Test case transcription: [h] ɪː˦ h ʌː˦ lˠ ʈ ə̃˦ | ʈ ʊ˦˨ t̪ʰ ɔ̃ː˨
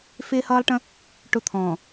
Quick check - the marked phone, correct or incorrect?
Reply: incorrect